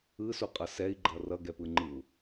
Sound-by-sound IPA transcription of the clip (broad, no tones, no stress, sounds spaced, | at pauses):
ɯ s u qʼ ʌ s ɛ i̯ ɡ͡ǃ ʌ r ʌ ɡ ɛ p ɯ ŋ͡ǃ ɯ u̯